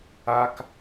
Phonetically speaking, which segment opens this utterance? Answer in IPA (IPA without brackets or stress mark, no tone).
a